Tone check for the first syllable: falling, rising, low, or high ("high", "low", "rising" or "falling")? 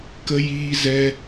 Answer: high